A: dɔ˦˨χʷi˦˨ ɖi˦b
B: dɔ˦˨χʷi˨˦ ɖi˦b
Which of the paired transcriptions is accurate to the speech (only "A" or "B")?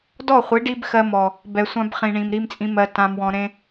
B